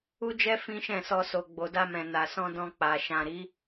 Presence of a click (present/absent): absent